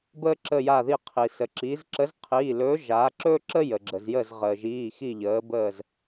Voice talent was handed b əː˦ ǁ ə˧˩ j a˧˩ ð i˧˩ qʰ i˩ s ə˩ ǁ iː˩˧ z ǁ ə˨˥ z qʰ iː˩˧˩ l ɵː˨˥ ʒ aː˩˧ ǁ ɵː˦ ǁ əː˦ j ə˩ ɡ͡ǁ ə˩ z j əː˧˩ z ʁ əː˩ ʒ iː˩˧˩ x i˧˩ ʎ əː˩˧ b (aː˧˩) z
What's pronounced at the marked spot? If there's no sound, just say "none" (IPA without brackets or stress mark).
əː˧˩